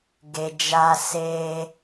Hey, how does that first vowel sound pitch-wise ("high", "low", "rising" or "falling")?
low